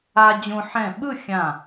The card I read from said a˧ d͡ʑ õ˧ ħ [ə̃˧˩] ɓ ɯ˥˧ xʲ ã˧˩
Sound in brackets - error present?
yes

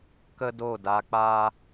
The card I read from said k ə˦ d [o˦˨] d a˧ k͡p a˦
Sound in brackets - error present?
no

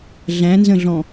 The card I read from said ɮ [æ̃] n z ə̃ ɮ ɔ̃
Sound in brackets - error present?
no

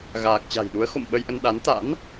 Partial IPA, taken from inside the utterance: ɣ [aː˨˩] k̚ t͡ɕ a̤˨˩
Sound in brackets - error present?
no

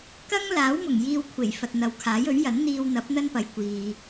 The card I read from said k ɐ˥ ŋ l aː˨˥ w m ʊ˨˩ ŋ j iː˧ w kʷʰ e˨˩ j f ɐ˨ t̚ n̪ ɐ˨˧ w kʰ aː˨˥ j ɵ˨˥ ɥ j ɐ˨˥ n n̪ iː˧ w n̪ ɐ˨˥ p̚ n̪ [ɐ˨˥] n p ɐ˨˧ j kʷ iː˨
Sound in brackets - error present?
yes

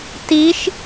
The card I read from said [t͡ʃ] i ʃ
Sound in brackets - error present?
yes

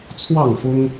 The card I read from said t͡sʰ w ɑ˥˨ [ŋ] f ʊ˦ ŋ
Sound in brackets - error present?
no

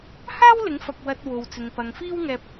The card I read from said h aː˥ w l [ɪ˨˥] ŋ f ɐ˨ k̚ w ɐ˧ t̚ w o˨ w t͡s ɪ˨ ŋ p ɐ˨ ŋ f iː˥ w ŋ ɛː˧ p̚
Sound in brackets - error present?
no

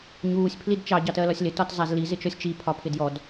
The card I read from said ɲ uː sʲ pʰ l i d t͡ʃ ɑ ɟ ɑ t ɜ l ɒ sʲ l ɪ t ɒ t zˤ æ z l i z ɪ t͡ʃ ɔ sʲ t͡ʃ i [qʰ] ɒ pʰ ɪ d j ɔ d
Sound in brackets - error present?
yes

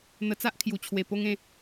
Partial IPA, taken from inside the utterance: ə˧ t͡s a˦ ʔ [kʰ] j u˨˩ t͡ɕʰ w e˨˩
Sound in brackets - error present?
no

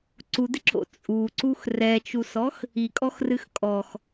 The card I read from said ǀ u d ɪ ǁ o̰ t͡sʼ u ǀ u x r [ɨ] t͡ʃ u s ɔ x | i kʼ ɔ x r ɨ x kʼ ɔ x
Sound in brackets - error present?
yes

